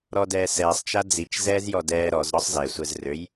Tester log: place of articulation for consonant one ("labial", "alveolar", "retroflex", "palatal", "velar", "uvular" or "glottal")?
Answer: alveolar